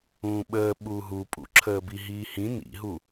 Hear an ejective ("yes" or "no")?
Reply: yes